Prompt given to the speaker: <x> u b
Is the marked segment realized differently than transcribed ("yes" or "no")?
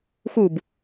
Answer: no